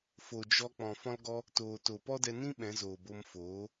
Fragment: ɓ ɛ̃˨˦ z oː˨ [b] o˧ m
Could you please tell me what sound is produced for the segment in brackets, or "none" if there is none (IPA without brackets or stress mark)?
b